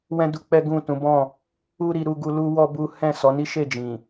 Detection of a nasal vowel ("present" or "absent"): present